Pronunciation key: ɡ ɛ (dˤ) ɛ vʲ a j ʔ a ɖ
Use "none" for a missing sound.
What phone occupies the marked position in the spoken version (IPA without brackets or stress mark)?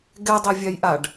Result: dˤ